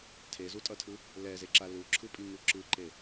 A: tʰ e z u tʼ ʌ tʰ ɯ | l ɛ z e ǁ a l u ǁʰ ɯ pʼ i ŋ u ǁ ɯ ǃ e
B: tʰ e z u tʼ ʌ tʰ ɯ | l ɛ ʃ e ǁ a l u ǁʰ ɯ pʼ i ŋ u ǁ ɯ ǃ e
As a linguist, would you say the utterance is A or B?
A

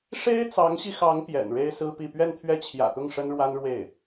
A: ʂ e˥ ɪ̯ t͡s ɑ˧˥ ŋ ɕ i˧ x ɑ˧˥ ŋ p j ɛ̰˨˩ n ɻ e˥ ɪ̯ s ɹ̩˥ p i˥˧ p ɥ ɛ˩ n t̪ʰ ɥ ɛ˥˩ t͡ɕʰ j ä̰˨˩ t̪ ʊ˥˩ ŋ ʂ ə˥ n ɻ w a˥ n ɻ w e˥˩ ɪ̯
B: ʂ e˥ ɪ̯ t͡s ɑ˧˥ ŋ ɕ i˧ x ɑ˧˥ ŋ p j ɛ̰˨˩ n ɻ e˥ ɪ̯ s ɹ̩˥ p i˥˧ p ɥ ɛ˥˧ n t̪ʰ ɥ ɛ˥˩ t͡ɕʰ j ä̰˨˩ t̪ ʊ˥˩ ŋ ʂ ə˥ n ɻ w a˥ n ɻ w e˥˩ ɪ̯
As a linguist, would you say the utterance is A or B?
B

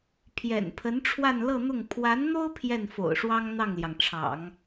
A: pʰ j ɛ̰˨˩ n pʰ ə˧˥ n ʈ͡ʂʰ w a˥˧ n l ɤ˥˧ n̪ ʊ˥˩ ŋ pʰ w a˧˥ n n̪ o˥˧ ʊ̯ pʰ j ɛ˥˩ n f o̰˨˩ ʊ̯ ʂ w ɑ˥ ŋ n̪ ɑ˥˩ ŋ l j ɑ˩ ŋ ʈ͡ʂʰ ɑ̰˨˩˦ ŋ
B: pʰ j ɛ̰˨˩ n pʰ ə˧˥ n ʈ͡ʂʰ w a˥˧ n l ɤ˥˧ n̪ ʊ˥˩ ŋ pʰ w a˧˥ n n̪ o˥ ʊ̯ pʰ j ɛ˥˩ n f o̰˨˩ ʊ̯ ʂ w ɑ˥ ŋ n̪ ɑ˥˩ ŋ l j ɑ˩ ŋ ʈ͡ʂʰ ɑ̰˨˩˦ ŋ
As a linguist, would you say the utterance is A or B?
B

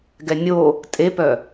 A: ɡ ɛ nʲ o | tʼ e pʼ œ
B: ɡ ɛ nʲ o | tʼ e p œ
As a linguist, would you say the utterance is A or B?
B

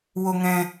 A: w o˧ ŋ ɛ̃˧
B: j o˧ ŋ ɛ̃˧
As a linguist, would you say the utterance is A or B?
A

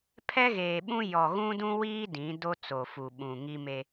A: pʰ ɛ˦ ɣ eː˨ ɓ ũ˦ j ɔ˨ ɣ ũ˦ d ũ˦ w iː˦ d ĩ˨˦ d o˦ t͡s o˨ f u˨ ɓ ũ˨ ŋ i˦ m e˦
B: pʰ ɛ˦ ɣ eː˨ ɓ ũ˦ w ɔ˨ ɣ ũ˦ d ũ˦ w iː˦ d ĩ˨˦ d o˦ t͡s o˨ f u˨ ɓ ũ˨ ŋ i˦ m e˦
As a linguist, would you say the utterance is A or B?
A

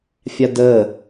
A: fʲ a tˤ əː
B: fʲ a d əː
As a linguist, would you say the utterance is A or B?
B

